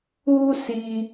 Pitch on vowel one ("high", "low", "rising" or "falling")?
high